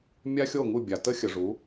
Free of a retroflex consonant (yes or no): no